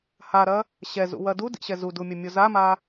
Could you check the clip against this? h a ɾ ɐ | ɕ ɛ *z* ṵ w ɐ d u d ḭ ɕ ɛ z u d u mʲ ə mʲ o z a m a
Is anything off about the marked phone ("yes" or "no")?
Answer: no